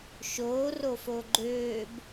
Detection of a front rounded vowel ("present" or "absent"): present